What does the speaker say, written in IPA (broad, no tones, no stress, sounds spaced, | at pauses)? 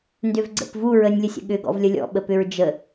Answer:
n d ʏ v ɡ͡ǀ ə̰ p v u ɹ ə nʲ lʲ ə sʲ ə̰ ɠ ʏ ɡ ɔ̰ v lʲ ə lʲ ɔ̰ ɓ ə p ʏ ɹ d͡ʒ ə